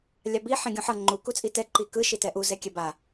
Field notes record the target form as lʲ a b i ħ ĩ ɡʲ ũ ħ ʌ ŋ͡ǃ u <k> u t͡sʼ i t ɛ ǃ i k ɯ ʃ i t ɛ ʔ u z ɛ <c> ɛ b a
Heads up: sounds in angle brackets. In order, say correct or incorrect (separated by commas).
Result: correct, incorrect